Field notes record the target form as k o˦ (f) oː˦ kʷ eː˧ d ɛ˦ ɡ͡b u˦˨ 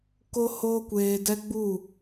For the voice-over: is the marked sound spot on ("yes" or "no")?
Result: no